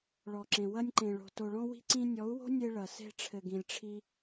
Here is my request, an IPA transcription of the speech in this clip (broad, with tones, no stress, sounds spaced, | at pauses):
ɭ ɔ˨ ǁ ẽ˨ w ɐ˧ nʲ ǃ ẽ˨ ɭ o̤˨ t o˨ ɭ ɔ̃˧ w i̤˧ ǀ ĩ˧ nʲ ɔ˨˦ u̯ w o̤˦ nʲ e˧ ɭ ɐ˨ s e̤˧ ʈ͡ʂʰ ɘ˨ ɡ ĩ˨ lʲ ʈ͡ʂʰ i˧